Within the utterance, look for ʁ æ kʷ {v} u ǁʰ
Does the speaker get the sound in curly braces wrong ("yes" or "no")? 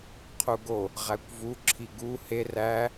no